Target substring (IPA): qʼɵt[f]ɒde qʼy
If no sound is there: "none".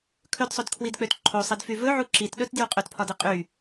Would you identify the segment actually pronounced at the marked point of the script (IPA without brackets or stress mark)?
pʰ